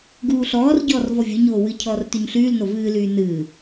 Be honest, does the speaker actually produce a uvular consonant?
no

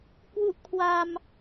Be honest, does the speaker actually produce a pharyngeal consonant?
no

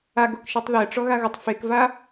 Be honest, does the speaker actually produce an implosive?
no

